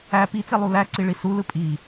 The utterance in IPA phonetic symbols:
æ pit͡se lˠulæǀi ɭisulɯ pʼi

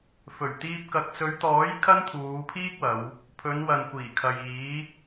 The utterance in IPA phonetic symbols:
fɵ˨˩ɥt̪iː˧p̚kɐ˨˥k̚ sɵ˨˧ɥt̪ɔː˨˥j kʰɐ˥nt̪ʰuː˨˧pʰiː˥k̚wɐ˨˧w | pʰɵ˨˧n wɐ˨nkʷiː˨˩kʰɐ˨j iː˨˧

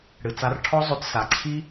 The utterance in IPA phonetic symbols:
ɽɨ˨t͡sa˧rʈʰɔ˦zˤø˧t sa˨ǀʰi˦

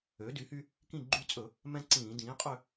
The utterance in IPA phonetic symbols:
ø˩˥dy˩˥hy˦ | kĩ˦˨ɡ͡ǃy˦˨t͡sʼɵ˧˩˧ | mɛ̃˦ ǀĩː˧˩˧dĩː˩˥ qʼø˦˨

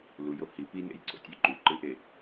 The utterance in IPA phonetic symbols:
lujo hi pinḛjǀo̰tʲʉ ǃʉǃɨʔe

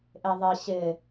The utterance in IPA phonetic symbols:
ʔeðˤɪ ɕɪ

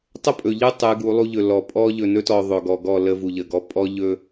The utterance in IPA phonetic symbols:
tˤə˦pʼɵ˨ʎɯ˦ tˤɯ˨˦ɡu˨˦lˠu˦ ʎɵ˨ lɔ˨pʼɔ˦ ʎɵ˨nɵ˦tɔ˨ ðˤɵ˨ɡɔ˨ɡɔ˦˨ lə˦vu˨ʎə˨ɡɔ˦ pʼɔ˦ʎɵ˦

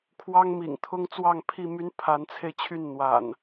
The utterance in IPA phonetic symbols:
kʰwɑ˦ŋmḭ˨˩ŋt̪ʰʊ˦ŋt͡swɑ˥˨ŋ pʰi˥˨my˦n pʰa˨˦nt͡sʰe˧ɪ̯t͡ɕʰy˥˨n n̪wa̰˨˩n

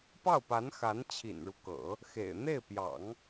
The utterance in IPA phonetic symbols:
pɑ˥˩ʊ̯pa˧˥n xa˧˥nt͡ɕʰḭ˨˩nɻu˦kɤ̰˨˩˦ | xḛ˨˩ɪ̯ n̪e˥˩ɪ̯pjɑ̰˨˩˦ŋ

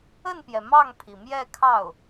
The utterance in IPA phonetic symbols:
ə˥˩npjɛ˩ mɑ˥˩ŋpʰi˩mjɛ˥˧ kʰɑ˥˩ʊ̯

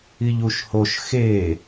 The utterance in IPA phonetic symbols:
iʎuʃhoʃ xe

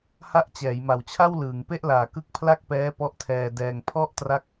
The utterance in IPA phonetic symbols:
ha˦˥ʔt͡ɕɛː˩˦j ma˨˩wt͡ɕʰa˥˩wlɯː˩˦ŋ pe˥˩ʔlaː˨˩kɯ˦˥k̚ pʰla˥˩k̚pɛː˦˥ pɔ˦˥ʔtʰɛː˧dɛː˧ŋ pʰɔ˥˩ʔtra˦˥k̚

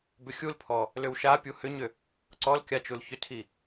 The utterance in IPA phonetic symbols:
bʏxʲulpʰɔ | lʏwʃapʲu hʏɲʏ | ǀɔl kʲat͡ʃulçʏtʰi

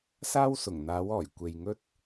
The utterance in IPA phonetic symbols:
saː˥wsʊ˨˩ŋn̪aː˨˥wɔː˨˩j kʷe˧j ŋɵ˥t̚

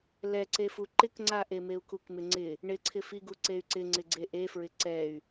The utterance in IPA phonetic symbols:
lɛǀefu ǃɪkŋ͡ǀaʔe meu̯kukmɪŋ͡ǀɪ | ɳɪǀʰɪfiɡu ǀey̯ǀɪ ŋ͡ǀɪɡ͡ǀeʔefɹɪ ǀɛy̯

